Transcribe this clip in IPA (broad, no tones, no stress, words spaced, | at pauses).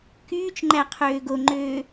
kyːt͡ʃŋ͡ǃæ qʰøːɡoŋ͡ǃøː